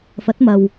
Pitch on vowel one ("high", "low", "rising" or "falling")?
rising